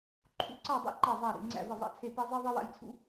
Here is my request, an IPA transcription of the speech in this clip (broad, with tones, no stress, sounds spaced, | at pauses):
ǃʰ ṵ˦˨ ǀ a˦˨ dˤ ḛ˦ ǃ ɛ˦˨ zˤ æ˦˨ ɾ ḭ˦˨ ŋ͡ǀ æ̰˦˨ v ɘ˦˨ zˤ a̰˦˨ t͡sʰ e˦˨ p ɛ˦ zˤ i˦ ðˤ i˦ w a̰˦ j t͡sʰ ṵ˦